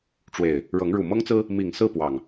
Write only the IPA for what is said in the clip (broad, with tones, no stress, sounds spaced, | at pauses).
ʈ͡ʂ w e˨˩ ɪ̯ | ɻ ɤ˨˦ ŋ ɻ u˨˩ m ɤ˦ ŋ t͡s ɹ̩˦ | m i˨˩ ŋ s ɹ̩˥˨ p w ɑ˨˩ ŋ